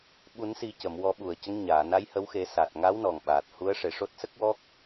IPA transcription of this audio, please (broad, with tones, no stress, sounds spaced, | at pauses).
ɓ u˨˩˦ n s i˨˩ c ə˨˩˨ m w ɔ˨˩˦ ɓ u˨˩˨ ə̯ c ə˧˥ ŋ ɲ aː˨˩˨ n a˧˥ j h ə˧˥ w x e˨˩˦ s a˨˩ t̚ ŋ a˧˥ w n ɔ˨˩ ŋ ɓ aː˨˩ t̚ h u˧˥ ə̯ ʂ e˨˩ ʂ o˦˥ t̚ s ə˦˥ k̚ w ɔ˦˥ k̚